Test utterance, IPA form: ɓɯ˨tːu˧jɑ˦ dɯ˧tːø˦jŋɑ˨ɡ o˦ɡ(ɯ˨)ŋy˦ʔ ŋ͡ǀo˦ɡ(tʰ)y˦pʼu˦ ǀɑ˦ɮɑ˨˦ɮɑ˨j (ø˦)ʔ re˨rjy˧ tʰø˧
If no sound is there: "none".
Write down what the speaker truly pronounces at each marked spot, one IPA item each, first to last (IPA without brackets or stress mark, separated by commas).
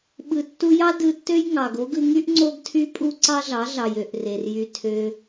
ɯ˧, tʰ, ø˨